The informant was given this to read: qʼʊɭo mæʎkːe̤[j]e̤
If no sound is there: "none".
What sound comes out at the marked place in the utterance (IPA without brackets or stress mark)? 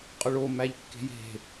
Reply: j